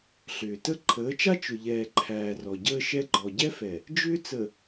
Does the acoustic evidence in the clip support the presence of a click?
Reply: yes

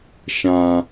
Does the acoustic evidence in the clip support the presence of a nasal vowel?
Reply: yes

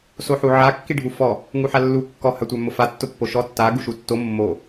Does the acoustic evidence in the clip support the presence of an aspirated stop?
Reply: no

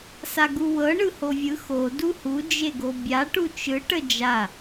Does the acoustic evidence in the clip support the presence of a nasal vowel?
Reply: no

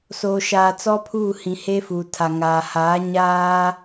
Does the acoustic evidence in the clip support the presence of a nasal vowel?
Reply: yes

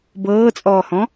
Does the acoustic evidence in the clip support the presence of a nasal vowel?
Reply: yes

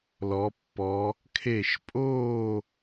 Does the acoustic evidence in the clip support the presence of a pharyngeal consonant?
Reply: no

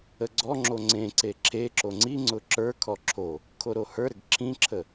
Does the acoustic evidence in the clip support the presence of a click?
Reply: yes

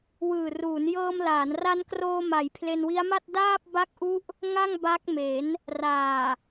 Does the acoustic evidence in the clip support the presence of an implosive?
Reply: no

